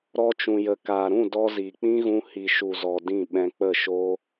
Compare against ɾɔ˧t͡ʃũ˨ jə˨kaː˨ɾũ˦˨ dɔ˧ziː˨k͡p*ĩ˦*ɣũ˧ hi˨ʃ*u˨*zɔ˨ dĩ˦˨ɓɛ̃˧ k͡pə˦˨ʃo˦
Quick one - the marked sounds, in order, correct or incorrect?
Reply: correct, correct

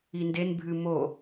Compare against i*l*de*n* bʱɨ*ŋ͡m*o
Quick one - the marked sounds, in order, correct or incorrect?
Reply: incorrect: n, correct, incorrect: m

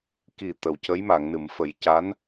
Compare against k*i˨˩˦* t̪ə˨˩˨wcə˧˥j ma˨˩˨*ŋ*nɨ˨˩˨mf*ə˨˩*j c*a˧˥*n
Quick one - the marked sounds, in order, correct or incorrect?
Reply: incorrect: i˨˩, correct, incorrect: ə˨˩˦, correct

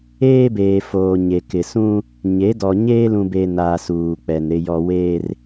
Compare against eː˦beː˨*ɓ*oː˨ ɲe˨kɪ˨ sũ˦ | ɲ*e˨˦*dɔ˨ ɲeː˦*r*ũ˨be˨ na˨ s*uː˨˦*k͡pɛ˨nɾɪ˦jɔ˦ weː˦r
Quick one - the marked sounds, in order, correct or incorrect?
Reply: incorrect: f, correct, incorrect: l, incorrect: uː˨

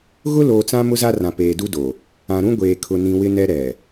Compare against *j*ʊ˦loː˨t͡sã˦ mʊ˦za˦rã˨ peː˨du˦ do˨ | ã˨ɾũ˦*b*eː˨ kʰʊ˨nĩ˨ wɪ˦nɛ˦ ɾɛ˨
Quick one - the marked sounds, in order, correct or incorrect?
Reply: incorrect: ɣ, incorrect: ɡʷ

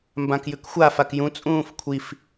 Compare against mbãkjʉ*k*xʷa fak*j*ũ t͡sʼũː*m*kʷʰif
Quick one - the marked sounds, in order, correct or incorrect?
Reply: correct, correct, incorrect: f

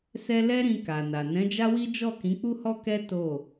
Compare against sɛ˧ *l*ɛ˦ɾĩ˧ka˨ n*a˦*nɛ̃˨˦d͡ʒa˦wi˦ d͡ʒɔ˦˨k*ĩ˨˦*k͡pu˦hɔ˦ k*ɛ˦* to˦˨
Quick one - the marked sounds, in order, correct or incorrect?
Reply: correct, incorrect: a˨, correct, correct

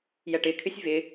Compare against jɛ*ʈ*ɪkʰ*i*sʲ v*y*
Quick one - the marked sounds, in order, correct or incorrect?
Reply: correct, incorrect: ɨ, incorrect: ɪ

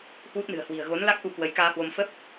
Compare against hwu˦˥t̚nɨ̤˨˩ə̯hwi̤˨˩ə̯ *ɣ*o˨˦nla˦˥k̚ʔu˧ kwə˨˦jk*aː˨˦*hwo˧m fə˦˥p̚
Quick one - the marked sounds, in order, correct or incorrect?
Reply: correct, incorrect: aː˧

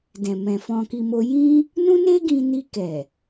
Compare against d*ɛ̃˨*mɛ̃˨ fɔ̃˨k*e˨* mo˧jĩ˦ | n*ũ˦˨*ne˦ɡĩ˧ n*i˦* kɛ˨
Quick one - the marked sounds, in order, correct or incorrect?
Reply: correct, incorrect: i˨, incorrect: ũ˦, incorrect: i˧

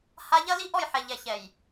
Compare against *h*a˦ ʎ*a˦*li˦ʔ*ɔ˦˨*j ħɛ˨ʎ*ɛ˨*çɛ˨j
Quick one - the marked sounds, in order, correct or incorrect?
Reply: correct, incorrect: ɐ˦, correct, correct

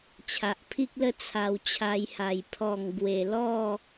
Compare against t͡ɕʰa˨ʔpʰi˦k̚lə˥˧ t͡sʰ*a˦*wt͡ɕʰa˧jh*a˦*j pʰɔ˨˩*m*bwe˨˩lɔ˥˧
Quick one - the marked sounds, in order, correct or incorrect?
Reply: incorrect: a˧, incorrect: a˨˩, incorrect: ŋ

